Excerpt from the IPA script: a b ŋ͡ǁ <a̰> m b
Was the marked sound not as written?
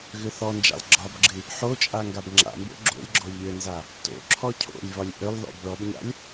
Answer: no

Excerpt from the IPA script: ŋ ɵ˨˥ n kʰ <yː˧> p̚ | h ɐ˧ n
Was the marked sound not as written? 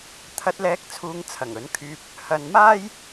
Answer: no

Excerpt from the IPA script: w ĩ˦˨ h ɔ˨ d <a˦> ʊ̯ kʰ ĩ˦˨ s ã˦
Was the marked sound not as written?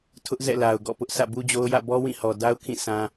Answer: no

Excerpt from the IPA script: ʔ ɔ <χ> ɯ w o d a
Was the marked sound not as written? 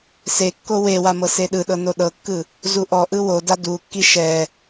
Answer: yes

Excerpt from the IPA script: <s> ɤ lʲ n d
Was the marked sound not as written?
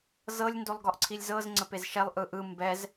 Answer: yes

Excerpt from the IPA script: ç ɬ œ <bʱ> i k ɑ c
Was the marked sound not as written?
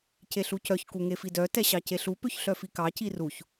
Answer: yes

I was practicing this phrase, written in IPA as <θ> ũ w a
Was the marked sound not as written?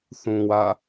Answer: no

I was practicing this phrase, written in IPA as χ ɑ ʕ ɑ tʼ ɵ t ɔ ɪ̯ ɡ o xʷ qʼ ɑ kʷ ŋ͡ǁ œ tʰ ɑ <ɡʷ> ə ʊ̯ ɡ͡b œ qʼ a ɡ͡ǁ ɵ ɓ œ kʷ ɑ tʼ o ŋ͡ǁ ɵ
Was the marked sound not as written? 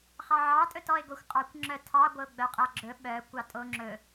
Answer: no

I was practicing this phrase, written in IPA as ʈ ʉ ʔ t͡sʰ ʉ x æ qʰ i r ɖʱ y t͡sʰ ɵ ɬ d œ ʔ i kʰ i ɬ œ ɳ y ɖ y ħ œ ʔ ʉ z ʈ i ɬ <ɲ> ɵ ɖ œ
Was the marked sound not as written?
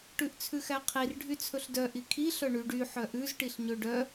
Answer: no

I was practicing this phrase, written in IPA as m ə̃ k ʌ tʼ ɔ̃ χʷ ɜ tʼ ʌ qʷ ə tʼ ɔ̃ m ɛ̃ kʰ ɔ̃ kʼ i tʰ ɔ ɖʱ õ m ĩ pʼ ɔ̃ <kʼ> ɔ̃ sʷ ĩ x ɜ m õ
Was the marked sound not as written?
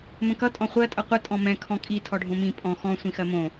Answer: yes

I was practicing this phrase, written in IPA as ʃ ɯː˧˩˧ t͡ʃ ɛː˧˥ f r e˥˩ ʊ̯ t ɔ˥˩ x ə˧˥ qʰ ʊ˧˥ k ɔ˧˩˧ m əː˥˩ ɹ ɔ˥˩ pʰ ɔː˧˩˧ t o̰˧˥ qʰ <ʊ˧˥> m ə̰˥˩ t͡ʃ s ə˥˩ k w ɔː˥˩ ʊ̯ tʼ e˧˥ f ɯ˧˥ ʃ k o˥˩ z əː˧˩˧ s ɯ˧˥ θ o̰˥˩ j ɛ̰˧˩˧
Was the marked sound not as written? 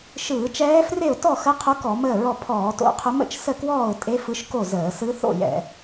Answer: no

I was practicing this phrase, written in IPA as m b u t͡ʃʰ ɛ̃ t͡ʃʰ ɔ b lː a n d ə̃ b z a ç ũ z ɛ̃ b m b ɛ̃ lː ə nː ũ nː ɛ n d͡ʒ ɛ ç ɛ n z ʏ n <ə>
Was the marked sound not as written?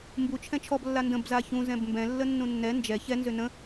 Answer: yes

